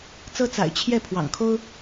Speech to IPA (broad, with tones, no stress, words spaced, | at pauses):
t͡sɤ˦ t͡sa̰˨˩ɪ̯ t͡ɕʰjɛ˥˨ pʰwɑ̰˨˩ŋkʰo˦ʊ̯